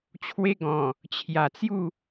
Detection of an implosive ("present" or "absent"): absent